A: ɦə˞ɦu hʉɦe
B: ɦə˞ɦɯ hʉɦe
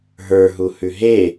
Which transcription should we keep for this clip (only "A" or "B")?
A